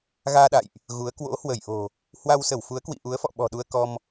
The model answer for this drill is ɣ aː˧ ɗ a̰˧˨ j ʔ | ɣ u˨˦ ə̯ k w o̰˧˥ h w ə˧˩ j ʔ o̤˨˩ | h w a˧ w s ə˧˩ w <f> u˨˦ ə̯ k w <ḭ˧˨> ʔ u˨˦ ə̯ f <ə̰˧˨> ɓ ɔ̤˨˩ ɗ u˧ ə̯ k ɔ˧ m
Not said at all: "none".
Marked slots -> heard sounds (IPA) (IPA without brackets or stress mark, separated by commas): f, ḭ˧˨, ɔ̰˧˨